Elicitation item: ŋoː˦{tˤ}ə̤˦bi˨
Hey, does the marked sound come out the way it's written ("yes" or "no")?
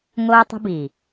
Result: yes